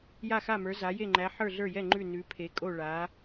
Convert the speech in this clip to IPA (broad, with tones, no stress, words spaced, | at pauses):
ja˥˧xa˥˧mə˞˧˥ za˧˥ je˥˧ŋ͡ǃæ˧˥ ħə˞˥˧ɮə˞˥˧jɛ˥˧ ŋ͡ǃʉ˥˧ nʉ˧˥ pʰe˧˥kʼo˥˧ ɭa˧˥